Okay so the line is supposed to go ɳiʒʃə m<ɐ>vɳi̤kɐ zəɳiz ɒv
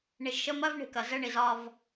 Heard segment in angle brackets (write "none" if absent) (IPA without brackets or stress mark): ɐ